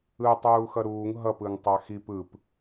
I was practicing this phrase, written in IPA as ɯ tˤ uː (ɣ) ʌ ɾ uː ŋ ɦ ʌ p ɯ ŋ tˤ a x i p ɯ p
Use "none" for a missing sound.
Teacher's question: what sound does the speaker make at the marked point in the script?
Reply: x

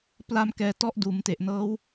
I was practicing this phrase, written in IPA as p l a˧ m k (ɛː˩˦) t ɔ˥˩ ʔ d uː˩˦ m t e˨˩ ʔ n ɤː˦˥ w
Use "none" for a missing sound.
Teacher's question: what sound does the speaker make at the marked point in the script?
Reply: ɛː˧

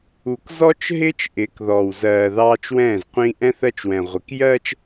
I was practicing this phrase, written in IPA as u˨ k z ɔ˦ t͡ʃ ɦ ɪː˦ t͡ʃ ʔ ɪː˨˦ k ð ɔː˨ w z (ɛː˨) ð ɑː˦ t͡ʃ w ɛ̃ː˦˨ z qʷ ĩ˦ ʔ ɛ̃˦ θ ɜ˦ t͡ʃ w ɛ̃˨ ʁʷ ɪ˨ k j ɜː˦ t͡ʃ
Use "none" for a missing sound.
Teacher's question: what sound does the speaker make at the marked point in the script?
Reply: ɜː˨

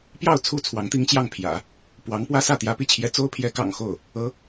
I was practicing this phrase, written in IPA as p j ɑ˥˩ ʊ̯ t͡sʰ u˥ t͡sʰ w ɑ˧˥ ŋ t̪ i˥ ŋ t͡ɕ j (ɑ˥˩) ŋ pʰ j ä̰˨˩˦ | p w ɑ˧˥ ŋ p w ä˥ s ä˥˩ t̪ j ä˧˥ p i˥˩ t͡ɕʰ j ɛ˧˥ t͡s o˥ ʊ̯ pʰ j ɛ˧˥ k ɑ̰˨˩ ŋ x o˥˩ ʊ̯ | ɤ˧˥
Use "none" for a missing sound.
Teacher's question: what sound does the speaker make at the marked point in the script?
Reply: ɑ˥˩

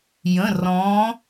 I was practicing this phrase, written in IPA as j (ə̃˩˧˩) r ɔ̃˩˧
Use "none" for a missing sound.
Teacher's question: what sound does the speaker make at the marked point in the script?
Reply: ə̃˩˧˩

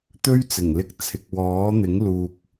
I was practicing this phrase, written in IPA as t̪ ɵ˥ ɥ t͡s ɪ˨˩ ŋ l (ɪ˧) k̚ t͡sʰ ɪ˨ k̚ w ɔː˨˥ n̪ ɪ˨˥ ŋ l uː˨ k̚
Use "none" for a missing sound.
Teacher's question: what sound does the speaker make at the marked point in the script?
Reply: ɪ˧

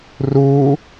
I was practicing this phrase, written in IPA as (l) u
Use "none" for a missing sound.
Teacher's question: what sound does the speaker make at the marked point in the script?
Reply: r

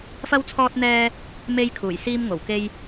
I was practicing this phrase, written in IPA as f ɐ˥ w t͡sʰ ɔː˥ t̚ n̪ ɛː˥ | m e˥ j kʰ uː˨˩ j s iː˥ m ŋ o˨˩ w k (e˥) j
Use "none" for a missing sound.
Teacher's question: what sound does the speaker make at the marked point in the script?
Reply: e˥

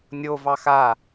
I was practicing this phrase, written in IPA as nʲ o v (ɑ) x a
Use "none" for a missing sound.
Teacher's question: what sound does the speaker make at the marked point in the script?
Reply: ɑ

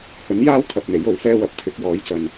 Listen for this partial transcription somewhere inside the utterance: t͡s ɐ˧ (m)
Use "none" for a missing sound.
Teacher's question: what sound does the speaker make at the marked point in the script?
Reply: n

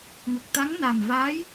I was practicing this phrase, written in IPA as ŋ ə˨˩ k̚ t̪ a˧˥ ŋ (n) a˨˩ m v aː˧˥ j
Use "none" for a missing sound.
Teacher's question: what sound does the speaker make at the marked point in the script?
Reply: n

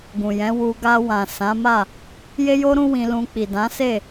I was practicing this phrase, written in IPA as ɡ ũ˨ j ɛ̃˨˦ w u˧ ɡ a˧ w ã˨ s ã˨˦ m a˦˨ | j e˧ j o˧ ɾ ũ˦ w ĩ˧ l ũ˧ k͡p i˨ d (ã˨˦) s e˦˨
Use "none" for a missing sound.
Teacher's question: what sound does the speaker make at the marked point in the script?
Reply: ã˨˦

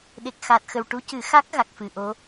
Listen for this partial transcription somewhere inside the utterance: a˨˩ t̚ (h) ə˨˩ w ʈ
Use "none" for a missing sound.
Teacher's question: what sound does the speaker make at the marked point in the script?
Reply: x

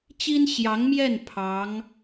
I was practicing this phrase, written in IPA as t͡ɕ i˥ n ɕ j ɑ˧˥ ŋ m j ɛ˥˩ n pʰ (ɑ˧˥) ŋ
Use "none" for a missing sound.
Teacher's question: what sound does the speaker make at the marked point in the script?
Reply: ɑ˧˥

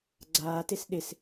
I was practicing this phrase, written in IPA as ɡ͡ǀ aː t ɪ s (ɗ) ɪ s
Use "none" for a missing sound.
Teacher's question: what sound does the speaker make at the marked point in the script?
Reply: ɗ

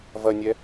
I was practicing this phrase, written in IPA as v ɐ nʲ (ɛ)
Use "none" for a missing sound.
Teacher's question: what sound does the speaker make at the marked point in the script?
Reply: ɛ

